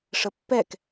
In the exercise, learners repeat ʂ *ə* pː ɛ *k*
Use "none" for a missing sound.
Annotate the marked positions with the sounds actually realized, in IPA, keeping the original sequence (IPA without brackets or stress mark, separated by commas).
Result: ə, k